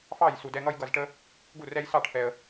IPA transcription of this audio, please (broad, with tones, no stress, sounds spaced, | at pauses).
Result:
f ɑ˥˩ j s u˨ d ɛ˦ ŋ ʌ˦ j ɡ ʌ˨ z ʈ ə˦ | ɡ u˥˩ r ɛ˦ j s ɑ˥˩ ʈ f ɛ˨ ə̯